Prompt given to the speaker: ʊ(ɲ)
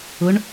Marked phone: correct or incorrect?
incorrect